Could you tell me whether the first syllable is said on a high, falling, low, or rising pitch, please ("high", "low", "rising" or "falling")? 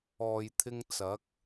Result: low